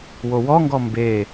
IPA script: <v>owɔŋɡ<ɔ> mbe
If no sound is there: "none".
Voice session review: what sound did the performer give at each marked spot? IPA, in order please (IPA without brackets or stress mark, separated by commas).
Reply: w, ɔ